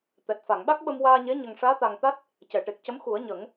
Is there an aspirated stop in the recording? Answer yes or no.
no